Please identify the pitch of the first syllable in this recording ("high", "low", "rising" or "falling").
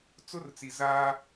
high